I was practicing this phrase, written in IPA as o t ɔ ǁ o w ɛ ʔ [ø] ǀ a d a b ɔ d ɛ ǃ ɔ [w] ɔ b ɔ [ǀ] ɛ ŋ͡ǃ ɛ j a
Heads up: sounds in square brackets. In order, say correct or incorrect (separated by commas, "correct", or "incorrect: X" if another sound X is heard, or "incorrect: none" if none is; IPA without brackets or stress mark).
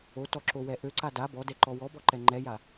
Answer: correct, correct, incorrect: ǃ